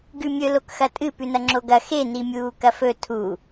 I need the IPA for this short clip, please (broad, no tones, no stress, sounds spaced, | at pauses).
ɡ ʉ mʲ ɵ l o k x ɐ tʼ ɨ p ʉ n ɐ ŋ͡ǁ o ɡ ɐ x e n i mʲ uː k ɐ f ɵ tʰ u